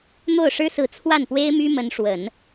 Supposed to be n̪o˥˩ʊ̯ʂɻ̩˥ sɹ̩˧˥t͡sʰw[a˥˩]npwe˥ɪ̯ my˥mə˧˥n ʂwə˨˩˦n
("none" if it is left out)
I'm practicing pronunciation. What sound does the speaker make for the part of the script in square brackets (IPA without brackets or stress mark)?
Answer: a˥˩